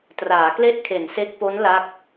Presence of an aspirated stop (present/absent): present